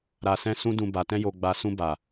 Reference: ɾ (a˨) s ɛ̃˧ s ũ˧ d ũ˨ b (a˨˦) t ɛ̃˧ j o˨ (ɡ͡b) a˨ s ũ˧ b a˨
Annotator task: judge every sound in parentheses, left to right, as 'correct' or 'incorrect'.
correct, incorrect: a˨, correct

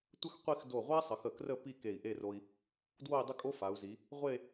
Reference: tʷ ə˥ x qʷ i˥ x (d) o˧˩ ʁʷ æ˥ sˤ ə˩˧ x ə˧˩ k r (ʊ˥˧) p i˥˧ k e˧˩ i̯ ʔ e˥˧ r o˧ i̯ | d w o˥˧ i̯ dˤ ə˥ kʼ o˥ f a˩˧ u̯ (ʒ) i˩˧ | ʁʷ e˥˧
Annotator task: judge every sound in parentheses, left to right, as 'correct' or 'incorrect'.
correct, incorrect: ə˥˧, incorrect: z

